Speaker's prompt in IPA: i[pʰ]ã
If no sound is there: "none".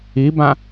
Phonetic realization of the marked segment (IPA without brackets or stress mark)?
b